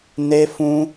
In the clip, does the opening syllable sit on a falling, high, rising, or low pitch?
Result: high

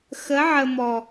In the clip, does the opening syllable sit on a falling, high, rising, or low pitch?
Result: rising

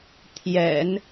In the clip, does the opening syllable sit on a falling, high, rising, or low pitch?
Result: low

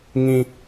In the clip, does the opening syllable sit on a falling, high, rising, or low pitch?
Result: high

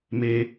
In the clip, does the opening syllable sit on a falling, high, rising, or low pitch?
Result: high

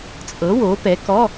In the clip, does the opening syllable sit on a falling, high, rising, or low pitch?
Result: rising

